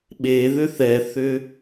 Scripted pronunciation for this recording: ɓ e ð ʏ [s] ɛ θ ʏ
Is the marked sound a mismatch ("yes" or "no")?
yes